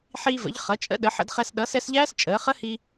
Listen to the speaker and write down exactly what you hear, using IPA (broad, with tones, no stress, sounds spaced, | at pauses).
ħ iː˧ v ə̰˩˥ ʎ χ ʌ˩˥ t͡ʃʼ ə̰˦˥ ɗ ə˩˥ ħ ə̰˧ d χ ɛ˧ s ɗ ʌː˩˥ s ɛ˩˥ s ʎ æː˦˥ s t͡ʃʼ əː˩˥ χ ə˦˥ h i˧